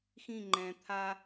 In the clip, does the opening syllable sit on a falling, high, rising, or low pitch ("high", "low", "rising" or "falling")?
falling